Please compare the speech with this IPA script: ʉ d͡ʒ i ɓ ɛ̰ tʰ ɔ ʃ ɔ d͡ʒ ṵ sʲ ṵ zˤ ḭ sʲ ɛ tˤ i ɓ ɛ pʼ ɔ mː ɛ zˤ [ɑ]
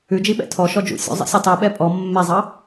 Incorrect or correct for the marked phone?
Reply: correct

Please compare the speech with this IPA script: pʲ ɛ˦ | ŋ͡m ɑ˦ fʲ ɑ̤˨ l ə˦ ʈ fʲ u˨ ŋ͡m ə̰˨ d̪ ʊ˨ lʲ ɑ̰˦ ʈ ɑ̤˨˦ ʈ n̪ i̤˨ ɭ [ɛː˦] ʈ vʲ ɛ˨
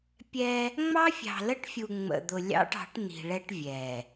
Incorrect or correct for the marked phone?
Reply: incorrect: ɛ˦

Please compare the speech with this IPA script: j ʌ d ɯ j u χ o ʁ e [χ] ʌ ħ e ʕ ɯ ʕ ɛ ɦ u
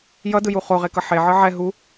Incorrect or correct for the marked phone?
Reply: incorrect: k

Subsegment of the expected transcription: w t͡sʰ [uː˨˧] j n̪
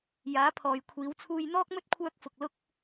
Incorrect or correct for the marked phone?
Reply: incorrect: uː˧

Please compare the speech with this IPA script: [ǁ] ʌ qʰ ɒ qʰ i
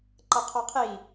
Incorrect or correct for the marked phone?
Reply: incorrect: ǃ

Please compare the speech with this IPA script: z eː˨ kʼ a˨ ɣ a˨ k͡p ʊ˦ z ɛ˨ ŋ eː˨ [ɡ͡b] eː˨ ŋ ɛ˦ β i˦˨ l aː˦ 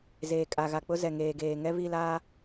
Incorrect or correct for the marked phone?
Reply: incorrect: ɡ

